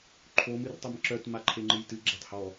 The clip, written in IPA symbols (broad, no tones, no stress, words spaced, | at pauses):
ǃʰom ɨrtˤemǁœt maǃʰeŋ͡ǃɨjtɨ ɡ͡ǁɛtˤhɔ